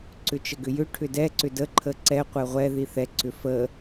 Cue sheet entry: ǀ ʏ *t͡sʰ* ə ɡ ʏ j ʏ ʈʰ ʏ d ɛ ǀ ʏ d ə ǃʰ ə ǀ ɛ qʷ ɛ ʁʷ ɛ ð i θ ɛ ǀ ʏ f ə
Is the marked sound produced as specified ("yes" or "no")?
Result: no